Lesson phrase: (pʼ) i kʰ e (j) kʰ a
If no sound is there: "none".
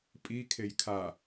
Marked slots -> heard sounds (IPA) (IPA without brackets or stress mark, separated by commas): pʼ, j